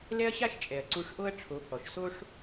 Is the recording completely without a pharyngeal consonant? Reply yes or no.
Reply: yes